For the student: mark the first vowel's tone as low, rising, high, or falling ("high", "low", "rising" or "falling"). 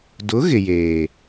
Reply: rising